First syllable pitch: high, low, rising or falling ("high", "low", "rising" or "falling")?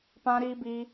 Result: high